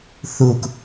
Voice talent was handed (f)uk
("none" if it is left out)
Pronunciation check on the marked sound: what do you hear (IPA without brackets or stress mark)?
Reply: θ